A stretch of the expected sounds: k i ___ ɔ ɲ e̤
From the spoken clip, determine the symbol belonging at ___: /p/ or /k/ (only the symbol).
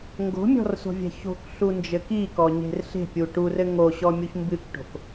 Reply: k